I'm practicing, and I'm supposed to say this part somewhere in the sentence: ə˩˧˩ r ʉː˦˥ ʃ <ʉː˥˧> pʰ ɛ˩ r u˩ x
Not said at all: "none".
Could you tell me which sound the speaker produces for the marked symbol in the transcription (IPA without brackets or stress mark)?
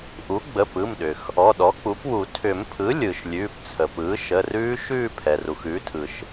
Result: ʉː˥˧